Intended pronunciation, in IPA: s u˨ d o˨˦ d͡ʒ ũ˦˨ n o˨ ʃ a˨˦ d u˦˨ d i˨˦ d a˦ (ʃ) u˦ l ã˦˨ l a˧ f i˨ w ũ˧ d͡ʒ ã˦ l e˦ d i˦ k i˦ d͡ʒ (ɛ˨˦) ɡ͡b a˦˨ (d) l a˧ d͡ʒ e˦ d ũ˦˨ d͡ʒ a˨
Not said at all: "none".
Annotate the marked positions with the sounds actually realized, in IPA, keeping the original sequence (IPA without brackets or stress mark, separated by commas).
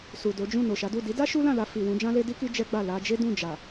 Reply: ʃ, ɛ˦, none